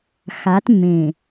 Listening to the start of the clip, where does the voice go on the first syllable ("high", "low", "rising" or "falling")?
rising